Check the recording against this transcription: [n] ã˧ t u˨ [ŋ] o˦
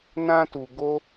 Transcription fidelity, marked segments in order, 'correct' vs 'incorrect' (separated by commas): correct, incorrect